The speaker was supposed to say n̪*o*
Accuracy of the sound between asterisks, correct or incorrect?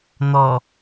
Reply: incorrect: ɔ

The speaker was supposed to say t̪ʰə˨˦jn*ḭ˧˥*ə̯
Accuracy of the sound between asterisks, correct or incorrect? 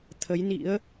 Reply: correct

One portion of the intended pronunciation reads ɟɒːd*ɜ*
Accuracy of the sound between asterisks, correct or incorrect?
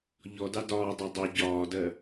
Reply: correct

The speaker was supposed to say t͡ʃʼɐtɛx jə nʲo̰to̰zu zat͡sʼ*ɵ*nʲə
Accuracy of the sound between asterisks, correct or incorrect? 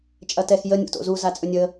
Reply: correct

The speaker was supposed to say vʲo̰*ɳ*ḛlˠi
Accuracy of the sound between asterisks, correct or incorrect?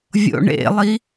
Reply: correct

